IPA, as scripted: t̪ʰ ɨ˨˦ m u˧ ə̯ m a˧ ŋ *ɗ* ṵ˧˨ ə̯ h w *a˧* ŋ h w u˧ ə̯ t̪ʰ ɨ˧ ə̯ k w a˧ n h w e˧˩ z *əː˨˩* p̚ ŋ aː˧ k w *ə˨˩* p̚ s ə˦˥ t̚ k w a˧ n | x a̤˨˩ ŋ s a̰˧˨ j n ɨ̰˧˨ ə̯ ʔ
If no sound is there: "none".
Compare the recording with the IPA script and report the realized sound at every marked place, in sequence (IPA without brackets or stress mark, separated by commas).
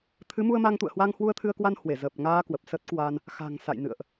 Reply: t̪, a˧, əː˨˩, ə˨˩